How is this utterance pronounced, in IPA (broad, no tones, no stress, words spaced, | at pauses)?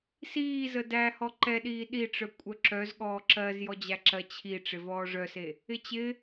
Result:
siːzə dæ hɔǃɛɗiː ɗiʈ͡ʂœ kʷʼœǁœz ɠɔːǁɜz jɔd͡ʑæǁɜ t͡ɕʰi ʈ͡ʂɪvɔːʐœse | ɪt͡ɕɪ